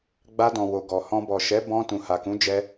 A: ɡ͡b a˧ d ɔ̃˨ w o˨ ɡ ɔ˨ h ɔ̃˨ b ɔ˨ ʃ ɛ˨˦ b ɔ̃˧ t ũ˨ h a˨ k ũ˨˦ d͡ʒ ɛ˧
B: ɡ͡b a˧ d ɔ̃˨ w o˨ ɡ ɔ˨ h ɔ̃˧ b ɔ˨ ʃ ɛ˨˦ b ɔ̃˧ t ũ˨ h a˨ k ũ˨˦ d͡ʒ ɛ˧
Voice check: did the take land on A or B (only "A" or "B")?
B